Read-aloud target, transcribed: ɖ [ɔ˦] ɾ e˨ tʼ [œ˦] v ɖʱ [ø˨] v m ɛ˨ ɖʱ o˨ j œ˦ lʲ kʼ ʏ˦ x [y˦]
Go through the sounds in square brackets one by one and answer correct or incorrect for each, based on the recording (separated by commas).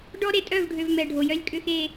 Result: correct, incorrect, correct, incorrect